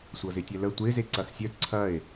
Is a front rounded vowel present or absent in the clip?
present